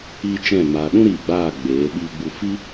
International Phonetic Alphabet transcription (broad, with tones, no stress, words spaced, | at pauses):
i˦t͡ʃɛ̃˦˨ maː˨ɗũ˦ɾiː˨ ɡ͡baː˦˨ɡ͡beː˨˦ ɓiː˧ɡ͡bu˧fi˦